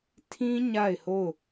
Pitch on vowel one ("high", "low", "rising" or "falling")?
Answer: high